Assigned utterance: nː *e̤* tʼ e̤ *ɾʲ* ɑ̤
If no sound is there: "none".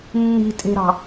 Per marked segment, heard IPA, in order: i̤, ɾ

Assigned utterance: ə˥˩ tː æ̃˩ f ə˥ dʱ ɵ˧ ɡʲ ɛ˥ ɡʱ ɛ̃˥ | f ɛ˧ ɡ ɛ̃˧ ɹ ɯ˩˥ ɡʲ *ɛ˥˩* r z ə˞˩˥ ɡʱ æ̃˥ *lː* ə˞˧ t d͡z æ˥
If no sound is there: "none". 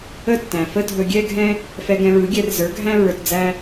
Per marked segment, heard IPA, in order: ɛ˧, ɹ

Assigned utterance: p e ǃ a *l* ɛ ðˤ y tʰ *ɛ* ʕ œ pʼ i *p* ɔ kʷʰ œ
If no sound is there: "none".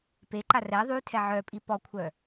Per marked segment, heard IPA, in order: r, ɛ, p

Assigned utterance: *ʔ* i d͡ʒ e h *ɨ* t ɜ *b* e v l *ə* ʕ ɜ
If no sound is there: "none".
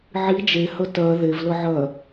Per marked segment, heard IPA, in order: ʕ, ə, ð, ə

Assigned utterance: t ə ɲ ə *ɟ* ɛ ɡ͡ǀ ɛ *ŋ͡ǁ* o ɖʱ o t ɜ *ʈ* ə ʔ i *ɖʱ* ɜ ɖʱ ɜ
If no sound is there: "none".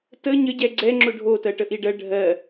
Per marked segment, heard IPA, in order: ɟ, ŋ͡ǁ, ʈ, ɖ

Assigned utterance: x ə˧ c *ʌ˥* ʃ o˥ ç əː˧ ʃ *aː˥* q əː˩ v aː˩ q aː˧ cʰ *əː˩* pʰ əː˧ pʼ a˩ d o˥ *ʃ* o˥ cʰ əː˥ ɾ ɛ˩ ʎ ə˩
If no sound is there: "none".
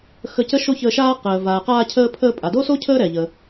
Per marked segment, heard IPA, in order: ə˥, aː˥, əː˧, s

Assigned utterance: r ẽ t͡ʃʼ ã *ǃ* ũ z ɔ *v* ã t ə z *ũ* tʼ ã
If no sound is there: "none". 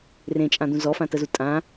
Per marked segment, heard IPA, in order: d̪, f, u

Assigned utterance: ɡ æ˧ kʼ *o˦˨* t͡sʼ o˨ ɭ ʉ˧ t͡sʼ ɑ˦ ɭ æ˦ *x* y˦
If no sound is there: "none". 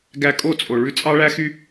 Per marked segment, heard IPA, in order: o˦˨, x

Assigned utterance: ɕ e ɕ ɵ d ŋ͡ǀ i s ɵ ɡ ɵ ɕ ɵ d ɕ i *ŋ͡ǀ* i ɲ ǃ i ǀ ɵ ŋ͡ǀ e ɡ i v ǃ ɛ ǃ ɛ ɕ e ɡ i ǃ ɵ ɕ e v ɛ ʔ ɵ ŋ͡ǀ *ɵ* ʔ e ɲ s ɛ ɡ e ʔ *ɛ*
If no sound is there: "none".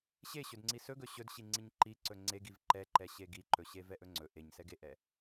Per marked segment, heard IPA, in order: ŋ͡ǀ, ɵ, ɛ

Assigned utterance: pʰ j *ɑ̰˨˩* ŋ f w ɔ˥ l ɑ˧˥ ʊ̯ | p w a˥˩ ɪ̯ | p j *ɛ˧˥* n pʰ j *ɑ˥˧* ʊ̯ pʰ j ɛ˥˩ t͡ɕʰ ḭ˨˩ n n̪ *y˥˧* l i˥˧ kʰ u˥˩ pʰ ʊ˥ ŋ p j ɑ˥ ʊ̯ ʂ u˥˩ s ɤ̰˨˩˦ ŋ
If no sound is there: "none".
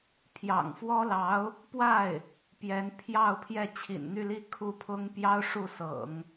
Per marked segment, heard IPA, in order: ɑ̰˨˩, ɛ˧˥, ɑ˥˧, y˥˧

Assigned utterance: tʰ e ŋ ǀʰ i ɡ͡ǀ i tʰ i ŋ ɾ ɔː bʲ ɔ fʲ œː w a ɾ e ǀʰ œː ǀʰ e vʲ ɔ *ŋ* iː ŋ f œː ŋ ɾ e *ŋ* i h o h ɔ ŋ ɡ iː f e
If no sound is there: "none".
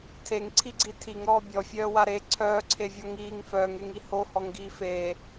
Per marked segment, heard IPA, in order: ŋ, ŋ

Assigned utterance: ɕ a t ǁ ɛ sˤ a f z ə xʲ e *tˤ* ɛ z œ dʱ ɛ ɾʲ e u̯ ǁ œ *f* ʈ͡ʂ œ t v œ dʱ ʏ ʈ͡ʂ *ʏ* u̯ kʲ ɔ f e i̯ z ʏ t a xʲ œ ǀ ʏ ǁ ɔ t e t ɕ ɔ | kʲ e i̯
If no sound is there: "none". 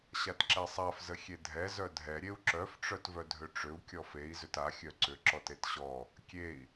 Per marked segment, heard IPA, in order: dʱ, f, ʏ

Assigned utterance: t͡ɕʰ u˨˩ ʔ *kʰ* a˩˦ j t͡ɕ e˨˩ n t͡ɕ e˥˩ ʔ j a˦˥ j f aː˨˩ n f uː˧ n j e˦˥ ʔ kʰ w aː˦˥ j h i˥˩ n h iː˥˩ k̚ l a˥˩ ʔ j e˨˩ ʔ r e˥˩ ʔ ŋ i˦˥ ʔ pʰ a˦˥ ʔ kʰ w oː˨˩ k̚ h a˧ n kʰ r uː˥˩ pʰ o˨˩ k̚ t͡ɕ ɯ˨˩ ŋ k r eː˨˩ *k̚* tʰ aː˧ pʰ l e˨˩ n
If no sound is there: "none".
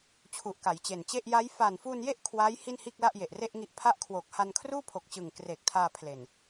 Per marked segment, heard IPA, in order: k, k̚

